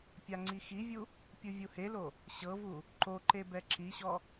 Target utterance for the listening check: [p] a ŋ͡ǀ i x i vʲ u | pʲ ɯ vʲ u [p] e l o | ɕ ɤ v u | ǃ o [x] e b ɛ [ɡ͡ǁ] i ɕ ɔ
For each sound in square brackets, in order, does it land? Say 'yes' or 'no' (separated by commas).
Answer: no, no, no, no